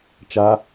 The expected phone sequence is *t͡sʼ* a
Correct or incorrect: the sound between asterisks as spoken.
incorrect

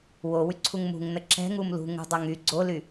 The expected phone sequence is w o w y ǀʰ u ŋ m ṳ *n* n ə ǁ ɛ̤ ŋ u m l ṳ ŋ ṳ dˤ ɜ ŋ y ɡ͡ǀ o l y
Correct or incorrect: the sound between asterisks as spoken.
incorrect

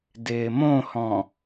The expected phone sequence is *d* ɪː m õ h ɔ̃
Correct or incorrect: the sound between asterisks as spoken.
correct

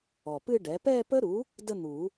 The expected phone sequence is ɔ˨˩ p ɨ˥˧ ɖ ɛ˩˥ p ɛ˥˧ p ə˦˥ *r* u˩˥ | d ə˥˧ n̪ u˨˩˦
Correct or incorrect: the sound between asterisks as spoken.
incorrect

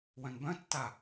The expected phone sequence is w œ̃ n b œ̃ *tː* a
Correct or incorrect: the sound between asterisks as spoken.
correct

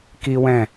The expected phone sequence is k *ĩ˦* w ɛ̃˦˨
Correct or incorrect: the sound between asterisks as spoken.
incorrect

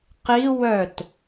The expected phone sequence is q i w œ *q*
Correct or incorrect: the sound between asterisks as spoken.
incorrect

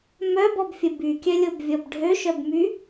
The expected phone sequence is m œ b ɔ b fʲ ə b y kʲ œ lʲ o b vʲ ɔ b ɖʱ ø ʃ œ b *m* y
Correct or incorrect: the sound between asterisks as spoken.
correct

